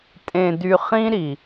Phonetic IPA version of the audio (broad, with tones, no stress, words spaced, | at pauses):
tʼẽ˧dy˧ χĩ˦ɾi˨